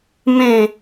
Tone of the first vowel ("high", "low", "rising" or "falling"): falling